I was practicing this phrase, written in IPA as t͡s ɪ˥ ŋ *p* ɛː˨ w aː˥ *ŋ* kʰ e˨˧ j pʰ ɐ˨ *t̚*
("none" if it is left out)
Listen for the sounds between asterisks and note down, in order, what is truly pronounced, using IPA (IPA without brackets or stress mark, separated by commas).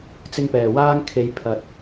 p, ŋ, t̚